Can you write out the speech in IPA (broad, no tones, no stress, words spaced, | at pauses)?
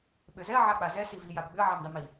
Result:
ɓʏzɛɐ̯ ʕak͡pazɛ sivi jabɡ͡bʏɐ̯ ʕamdˤimi